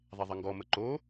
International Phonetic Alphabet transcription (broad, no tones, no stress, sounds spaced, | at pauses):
ðˤ e ðˤ ə ŋ ɡ ɔ m ə ǃ o